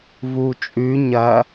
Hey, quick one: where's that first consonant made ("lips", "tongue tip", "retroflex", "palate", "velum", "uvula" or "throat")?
lips